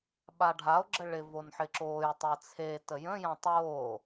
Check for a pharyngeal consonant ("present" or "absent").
present